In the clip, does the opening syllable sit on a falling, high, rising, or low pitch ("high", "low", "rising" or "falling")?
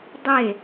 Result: falling